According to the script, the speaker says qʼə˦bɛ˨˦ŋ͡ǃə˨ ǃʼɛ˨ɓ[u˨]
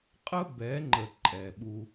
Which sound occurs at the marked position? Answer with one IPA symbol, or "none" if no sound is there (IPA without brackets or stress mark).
u˦